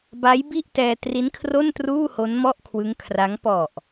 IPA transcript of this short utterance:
ba˦˥jbi˥˩ʔtɛː˧ tri˦˥nkʰro˥˩ntruː˥˩ ho˦˥nmɔ˥˩ʔkʰwɯ˦˥ŋkʰra˦˥ŋ pɔ˨˩ʔ

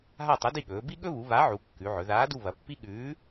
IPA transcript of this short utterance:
ɦa˦˨tˤɐ˨˥di˦˨ɠɵː˩˧ bi˦ɠɵ˦βu˩˧ βa˨˥ʕu˩˧ kːʉ˩˧ʕɵ˩˧ ðaː˨˥du˦˨ βɐ˩˧pːi˦ɠʉː˨˥

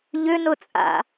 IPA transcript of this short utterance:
ʎʏnʊt͡sʼa̰

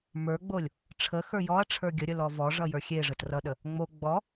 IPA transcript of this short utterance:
mə˞ɡ͡bolʲ | ʈ͡ʂʰə xə˞jɔɐ̯ ʈ͡ʂʰə˞ɡʲəɾʲə lɔvɔ ʐʌjə˞xʲe ʐətrʌɗə | ŋ͡mo ɡ͡bɔ

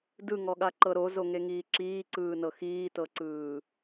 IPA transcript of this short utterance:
dɯŋɔɠaǃɤ ɾozoŋeŋiː ǁiːǀɯːnɤ xiːtɤǀɯː

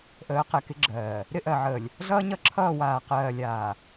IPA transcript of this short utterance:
ʔəː˨˦qɛ˨kɪ˦ɡ͡ǁɜː˨ | ɾɪ˦ʔɜ˨ʕəː˨lʲ | ɮʌː˦ɲʌ˦ǁʰʌː˦˨ waː˨qɜː˨lʲaː˨

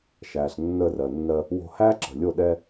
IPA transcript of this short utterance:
ʃæː˨ɬnːəː˧rɜ˨nːɜ˧ | wo̤˧hæː˦ǁə̤˨lʲo˦˨ ɗɛ˧

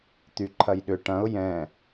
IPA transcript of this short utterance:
t̪yǃʰɐjɗʏ ʈɐ̃ʊ̯ jɛ̃

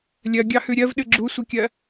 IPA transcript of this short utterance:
lʲɜɡʲɑhʉ ɾʲɜvɗɨ ɡ͡ǁusʷɨkʲɜ

